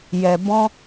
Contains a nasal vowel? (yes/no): yes